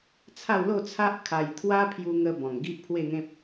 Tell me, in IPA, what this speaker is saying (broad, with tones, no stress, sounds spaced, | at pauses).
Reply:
t͡sʰ a˥˧ w l o˥˧ t͡sʰ a˦ ʔ kʰ a˧ j t̪ʰ w a˦ pʰ j u˧ ŋ ə˧ b ɔ̃˨˩ ŋ ɡ i˦ ʔ pʰ w e˥˧ ŋ ẽ˦ p̚